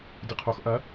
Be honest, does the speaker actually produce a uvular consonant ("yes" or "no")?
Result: yes